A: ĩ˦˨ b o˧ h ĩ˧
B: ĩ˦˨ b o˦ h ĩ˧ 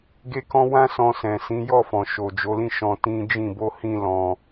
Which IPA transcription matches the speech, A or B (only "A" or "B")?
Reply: A